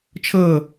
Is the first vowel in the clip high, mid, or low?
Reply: mid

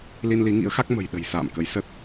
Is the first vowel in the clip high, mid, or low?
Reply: high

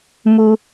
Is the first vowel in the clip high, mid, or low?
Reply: high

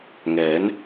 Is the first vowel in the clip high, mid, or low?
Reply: mid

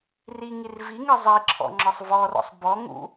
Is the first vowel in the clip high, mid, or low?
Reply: high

